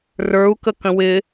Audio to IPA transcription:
rə˞u̯ kəkə̃wɪ

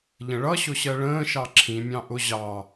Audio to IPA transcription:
ʎə̃ɭʌɕʊɕɜ ɭə̃ːʃɑ ǁʰĩmʲɑ̃ ʔʊ ʑɑ

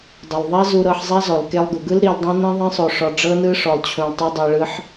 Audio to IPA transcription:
dˤo˨lˠðˤɛ˦zu˧ɾɤ˧ħ zˤɛ˦zɔ˨l ke˧lˠɡu˨ɡɯ˦l ɾi˧ldˤũ˦ nĩ˦ðˤĩ˦sˤo˧ʂɔ˧ ɖ͡ʐɤ˦nɯ˦ʂɔ˧lˠ t͡ɕʰũ˧lˠtˤe˦dˤi˧ɭɯ˦ħ

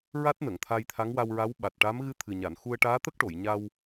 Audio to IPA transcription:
ɹa˦˥t̚nə˨˩˨ŋt̪ʰa˧jt̪ʰa˧˥ŋ wa˧wɹa˧˥w ɓa˨˩t̚ʈa˧˥m ɣɨ˧˥t̪ʰɨ˨˩ɲa˨˩˨n xu˧ə̯ʈaː˧˥t̪ə˦˥k̚ʈo˨˩˨j ɲa˧w

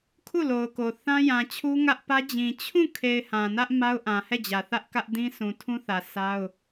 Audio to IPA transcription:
kʰu˦˨lo˨ʊ̯ko˨ θã˦jã˨t͡ɕʰu˦ ŋä˦ʔpä˦ d͡ʑĩ˨ t͡ɕʰũ˦˨kʰe˨ɪ̯ hã˨nä˦ʔ ma˦ʊ̯ʔã˨hɛ˦˨d͡ʑä˨ θä˦ʔkä˦ʔdĩ˦ sʰũ˨tʰũ˦θä˨ sʰa˦ʊ̯

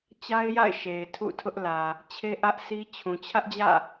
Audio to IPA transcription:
t͡ɕa˦ɪ̯ja̰˦˨ɪ̯ ʃe˨ɪ̯tʰṵ˦˨tʰʊ˦ʔlä˨ | t͡ɕʰe˦ʔä˦ʔsi˦ t͡ɕʰũ˨t͡ɕʰä˦ʔd͡ʑä̰˦˨

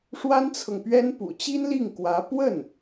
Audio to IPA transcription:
ʂwa˥nt͡sʰɤ˨ŋpɥɛ˥n pṵ˨˩t͡ɕi˥nli˥˩ŋ kwä˧˥ pwə˥˩n

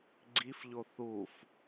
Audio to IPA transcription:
ɡ͡ǀifʎo θuf

